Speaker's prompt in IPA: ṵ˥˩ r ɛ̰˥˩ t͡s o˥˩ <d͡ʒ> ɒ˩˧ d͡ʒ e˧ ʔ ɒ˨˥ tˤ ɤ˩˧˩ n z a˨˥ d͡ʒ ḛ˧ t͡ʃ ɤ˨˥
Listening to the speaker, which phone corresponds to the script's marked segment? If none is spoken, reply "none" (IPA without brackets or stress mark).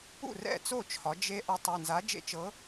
t͡ʃʰ